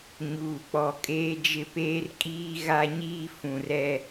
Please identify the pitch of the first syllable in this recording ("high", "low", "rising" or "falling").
low